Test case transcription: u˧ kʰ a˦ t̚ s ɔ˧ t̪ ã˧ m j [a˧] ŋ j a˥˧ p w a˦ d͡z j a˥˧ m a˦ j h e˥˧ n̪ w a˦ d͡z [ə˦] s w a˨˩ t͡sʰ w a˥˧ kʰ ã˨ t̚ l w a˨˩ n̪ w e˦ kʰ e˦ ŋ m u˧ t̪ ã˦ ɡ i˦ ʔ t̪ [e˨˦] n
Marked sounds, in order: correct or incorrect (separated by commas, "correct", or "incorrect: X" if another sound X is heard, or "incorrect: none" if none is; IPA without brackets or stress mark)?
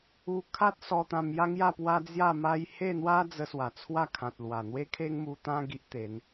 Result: incorrect: a˦, incorrect: ə˧, correct